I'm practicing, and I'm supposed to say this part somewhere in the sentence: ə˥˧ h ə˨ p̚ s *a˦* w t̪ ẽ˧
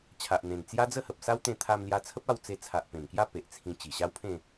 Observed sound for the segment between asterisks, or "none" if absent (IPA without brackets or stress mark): a˦